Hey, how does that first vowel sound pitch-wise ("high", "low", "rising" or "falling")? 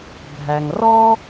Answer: low